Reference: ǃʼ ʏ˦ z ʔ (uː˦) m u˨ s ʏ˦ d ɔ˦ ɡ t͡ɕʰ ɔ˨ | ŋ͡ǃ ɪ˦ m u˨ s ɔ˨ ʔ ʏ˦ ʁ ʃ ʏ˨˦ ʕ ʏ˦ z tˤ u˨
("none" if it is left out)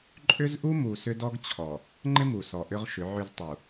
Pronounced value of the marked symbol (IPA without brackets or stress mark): u˦